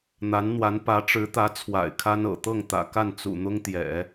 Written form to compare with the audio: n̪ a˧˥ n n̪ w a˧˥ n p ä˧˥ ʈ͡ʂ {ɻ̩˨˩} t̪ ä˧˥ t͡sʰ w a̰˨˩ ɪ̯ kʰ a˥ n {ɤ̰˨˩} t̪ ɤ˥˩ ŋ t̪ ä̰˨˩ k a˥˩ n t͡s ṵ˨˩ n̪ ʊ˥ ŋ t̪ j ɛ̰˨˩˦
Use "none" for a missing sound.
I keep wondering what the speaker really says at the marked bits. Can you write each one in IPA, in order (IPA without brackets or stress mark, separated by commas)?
ɻ̩˧˥, ɤ̰˨˩